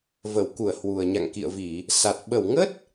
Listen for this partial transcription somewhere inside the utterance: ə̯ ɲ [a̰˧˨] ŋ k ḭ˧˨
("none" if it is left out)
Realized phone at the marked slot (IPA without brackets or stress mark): a̰˧˨